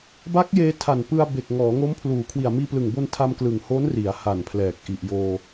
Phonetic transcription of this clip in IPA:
b a˦˥ k̚ j eː˧ tʰ a˨˩ n p ɯ˧ a̯ b e˨˩ k̚ ŋ ɔː˩˦ ŋ o˦˥ m pʰ l uː˨˩ kʰ w i˨˩ a̯ m iː˧ p l ɯ˨˩ ŋ b o˧ n tʰ a˧ m k l ɯ˨˩ ŋ h oː˦˥ n r i˩˦ a̯ h a˨˩ n pʰ l ɛː˨˩ k̚ ʔ i˨˩ ʔ j oː˧

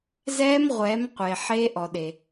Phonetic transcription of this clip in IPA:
z ɛː˧˥ m ʁʷ ɛ˩˧ m qʷ e˩ ħ e˧˥ ʔ ɔ˩ ɗ e˩

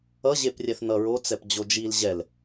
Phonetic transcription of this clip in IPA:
ʌ ʑ e p rʲ ɛ θ n ʌ ɹ o t͡s ɛ p d͡ʑ o d͡ʒ i l ʑ ɛ l

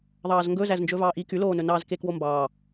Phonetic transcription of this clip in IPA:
ðˤ ɑː z ŋ ɡ ɵ z æ z n d͡ʒ ɵ v ɑː ʔ i k y l oː n ɵ n ɑː z k e k w o m b ɑː

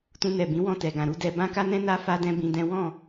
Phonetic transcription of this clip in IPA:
t ũ˧ n ɛ˨ b ĩ˨˦ w ɔ̃˦˨ t ɛ˨ ɡ ã˨ ɾ u˨˦ d ɛ˧ b ã˦ k a˦ n ɛ̃˦ n a˦ f a˦ d ɛ̃˦ b ĩ˧ d ɛ̃˦ w ɔ̃˦˨

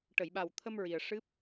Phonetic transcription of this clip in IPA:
ʈ ə˨˩˨ j ɓ a˨˩ w t̪ʰ ə˧ m ɹ i˨˩ ə̯ ʂ ɨ˦˥ p̚

